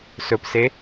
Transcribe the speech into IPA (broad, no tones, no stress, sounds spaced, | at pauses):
s ɵ p s e